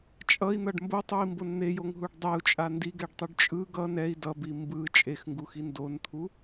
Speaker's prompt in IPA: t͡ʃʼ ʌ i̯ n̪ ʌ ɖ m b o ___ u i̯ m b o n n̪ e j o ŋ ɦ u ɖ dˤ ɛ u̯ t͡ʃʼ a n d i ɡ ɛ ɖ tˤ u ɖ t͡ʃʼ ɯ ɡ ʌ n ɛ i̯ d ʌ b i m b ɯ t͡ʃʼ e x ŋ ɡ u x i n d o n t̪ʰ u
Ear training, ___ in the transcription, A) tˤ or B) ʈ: A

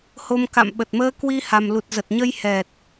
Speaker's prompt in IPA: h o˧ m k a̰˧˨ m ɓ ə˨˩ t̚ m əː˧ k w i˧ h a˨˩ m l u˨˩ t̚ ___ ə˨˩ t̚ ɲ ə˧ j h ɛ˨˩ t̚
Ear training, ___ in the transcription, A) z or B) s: A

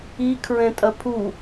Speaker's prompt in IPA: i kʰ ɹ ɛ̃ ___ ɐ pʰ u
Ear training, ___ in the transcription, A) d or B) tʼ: B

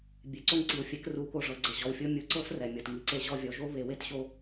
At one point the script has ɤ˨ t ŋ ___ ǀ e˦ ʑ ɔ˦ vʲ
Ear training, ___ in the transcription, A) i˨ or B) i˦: A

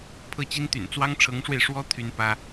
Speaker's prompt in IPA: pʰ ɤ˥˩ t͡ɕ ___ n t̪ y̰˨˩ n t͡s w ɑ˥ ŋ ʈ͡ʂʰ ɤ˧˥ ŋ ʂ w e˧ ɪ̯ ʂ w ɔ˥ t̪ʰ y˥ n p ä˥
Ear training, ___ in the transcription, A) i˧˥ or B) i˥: B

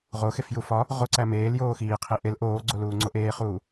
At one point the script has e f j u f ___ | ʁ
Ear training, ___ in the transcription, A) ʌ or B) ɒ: B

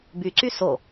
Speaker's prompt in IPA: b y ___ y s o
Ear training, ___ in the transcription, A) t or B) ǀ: B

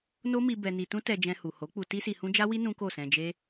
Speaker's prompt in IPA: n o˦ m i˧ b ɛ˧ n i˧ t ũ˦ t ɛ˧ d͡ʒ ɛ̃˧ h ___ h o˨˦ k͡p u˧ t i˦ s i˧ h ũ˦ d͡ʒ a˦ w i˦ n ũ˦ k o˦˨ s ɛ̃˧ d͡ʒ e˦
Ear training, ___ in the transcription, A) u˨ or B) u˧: A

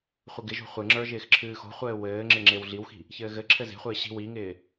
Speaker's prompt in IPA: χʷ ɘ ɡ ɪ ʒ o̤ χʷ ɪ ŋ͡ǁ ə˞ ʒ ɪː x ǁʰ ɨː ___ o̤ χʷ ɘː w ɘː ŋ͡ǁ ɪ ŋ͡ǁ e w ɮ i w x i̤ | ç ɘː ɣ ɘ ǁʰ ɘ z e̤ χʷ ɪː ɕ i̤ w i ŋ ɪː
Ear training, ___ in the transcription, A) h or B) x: B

